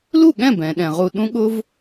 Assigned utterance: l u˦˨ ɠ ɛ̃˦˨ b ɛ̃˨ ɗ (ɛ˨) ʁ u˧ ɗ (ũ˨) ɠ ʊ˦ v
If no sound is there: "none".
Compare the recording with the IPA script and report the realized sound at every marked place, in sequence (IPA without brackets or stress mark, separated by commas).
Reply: ɛ̃˨, ũ˦